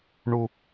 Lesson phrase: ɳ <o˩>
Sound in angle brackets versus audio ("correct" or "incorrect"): incorrect